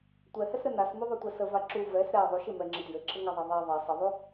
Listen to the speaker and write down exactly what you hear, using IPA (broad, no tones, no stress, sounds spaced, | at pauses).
tʷ ɛ h ɛ s ɾ ɘ n a s m u ðˤ o tʷ ɛ s ə v a ǁ u v ɛ s ɾ ɛ ðˤ u ʃ ɪ m ɛ ŋ͡ǁ ə d j ɘ ǁʰ ɘ ŋ a ðˤ a ðˤ ɛ ðˤ ɛ sˤ ɘ ðˤ u